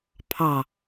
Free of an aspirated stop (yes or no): no